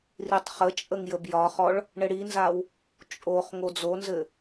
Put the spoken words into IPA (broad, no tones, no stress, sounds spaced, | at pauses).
r i tˤ χ ə t͡ʃʼ ə ŋ j ə b j ɒ χ ɔ ɭ | ɳ ɘ ɽ i n z a w | t͡ʃʼ o χ ŋ o d͡z o n z ɘ